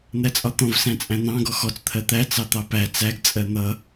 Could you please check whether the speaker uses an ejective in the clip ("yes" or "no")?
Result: yes